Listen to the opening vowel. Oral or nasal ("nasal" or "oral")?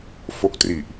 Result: oral